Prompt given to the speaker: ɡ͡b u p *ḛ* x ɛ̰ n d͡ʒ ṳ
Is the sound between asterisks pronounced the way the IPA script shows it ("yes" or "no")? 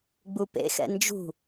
yes